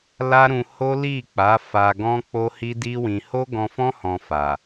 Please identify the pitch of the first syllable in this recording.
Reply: high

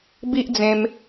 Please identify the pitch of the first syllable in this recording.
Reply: high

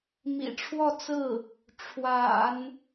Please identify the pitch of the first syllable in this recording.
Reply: low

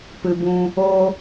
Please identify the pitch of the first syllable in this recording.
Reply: low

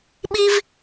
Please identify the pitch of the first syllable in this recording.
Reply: high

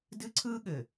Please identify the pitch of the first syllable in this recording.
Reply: high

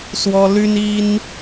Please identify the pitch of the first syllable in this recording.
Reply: high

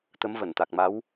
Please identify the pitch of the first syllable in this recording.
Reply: rising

